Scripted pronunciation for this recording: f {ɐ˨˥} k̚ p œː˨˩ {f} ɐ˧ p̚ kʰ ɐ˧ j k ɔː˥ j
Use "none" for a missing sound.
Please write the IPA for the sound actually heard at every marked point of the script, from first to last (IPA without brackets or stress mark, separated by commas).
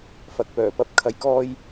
ɐ˨˥, p